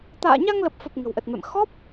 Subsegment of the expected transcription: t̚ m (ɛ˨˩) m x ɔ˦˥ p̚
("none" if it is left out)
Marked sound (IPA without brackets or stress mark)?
ɛ̰˧˨